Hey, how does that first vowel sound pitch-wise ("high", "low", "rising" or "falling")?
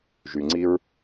low